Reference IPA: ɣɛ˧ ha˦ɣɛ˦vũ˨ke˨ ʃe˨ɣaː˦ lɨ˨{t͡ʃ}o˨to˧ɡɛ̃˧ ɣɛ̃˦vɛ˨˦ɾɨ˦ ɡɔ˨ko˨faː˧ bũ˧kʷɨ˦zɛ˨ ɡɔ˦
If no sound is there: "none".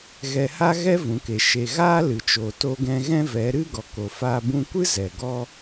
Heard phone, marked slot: t͡ʃ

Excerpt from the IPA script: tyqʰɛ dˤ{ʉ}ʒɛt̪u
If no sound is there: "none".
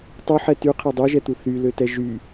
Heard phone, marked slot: ø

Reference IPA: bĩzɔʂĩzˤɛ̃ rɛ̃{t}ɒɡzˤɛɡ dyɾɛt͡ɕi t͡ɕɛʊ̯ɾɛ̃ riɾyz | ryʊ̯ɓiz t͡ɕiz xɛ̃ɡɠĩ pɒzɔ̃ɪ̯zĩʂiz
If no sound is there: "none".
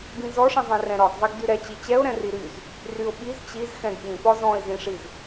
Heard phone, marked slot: ɾ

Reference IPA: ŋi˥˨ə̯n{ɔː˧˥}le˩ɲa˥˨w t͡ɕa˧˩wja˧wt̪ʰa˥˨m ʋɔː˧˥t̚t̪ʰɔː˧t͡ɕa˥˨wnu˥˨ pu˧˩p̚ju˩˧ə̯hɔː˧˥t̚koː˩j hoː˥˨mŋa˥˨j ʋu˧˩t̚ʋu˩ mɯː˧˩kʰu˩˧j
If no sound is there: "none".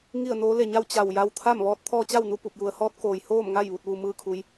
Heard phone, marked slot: oː˧˥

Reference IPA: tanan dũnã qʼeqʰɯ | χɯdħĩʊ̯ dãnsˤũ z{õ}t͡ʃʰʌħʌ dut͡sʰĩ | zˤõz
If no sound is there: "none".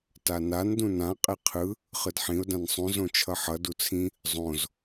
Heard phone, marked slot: õ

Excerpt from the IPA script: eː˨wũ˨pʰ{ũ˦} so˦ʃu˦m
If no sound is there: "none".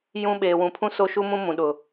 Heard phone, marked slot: ũ˦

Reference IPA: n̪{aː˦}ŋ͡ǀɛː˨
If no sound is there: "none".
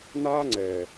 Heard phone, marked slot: aː˦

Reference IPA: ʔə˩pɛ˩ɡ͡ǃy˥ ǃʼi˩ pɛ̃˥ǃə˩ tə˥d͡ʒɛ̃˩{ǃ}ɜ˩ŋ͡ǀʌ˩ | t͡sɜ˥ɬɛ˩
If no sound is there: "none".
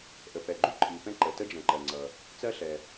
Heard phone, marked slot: ǃ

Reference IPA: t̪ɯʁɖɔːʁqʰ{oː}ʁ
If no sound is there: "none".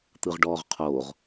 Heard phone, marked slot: oː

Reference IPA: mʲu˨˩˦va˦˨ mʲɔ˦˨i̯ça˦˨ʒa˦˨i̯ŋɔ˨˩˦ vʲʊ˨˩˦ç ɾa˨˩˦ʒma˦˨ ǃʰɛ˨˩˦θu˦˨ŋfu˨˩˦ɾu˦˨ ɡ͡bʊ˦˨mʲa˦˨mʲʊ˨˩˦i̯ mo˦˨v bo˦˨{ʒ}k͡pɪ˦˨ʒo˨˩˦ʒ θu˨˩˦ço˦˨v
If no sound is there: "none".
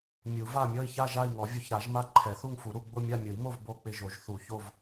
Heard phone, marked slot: none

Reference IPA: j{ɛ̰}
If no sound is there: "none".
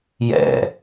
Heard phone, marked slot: ɛ̰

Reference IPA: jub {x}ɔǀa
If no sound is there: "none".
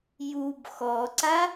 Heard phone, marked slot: x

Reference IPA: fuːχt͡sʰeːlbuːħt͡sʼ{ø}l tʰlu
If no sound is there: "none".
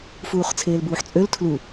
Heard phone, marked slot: ø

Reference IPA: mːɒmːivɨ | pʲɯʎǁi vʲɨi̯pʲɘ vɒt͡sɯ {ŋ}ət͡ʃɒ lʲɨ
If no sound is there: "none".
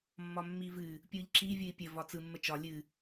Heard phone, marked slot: mː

